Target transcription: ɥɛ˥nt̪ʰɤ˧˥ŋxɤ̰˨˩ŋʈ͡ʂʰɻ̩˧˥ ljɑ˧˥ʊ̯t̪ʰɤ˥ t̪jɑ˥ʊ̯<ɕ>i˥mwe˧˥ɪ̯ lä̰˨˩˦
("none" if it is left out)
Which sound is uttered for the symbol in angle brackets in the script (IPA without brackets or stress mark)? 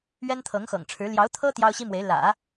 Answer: ɕ